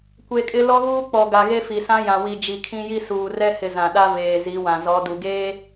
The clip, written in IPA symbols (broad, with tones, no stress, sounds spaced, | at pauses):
kʷ e˨ kʼ ɪ˦ l ɔ˦ ɣ uː˦ k͡p ɔ˨ ɡ a˨ ɣ e˦ f i˨ s ã˦ j ã˨ w i˨ d͡ʒ i˨ kʰ ĩ˦ j i˦ s uː˨ r ɛ˦ h ɪ˨ z ã˨ ɗ a˦ v eː˨ z i˨˦ w ã˨ z ɔ˨˦ d u˨ ɡ eː˦